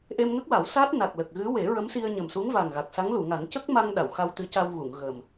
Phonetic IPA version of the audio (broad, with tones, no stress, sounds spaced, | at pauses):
ʔ e˧ m ŋ ə˦˥ k̚ w a˨˩˦ w s aː˦˥ t̚ n a˨˩ k̚ l ə˨˩ k̚ ɣ ɨ˧˥ w e˨˩˦ ɹ ə˧˥ m s i˧ ə̯ ɲ ə˨˩ m s u˧˥ ŋ v a˨˩ ŋ ɣ a˨˩ k̚ s a˧˥ ŋ l u˨˩˨ ŋ a˨˩˦ n c ə˦˥ k̚ m a˧ ŋ ɗ a˨˩˨ w x a˧ w t̪ ɨ˧˥ c a˧ w ɣ u˨˩˨ ŋ ɣ ə˨˩ m